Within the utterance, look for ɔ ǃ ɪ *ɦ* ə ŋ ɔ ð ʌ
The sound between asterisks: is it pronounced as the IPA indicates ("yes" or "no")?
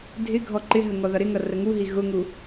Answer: yes